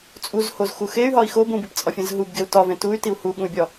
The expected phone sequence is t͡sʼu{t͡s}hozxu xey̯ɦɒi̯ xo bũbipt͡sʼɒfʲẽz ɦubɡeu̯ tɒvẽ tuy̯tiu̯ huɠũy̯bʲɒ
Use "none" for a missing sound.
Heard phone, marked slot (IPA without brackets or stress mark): z